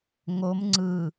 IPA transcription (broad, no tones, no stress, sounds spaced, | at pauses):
ŋ o m ŋ͡ǀ ɯ